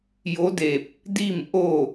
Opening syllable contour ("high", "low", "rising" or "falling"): rising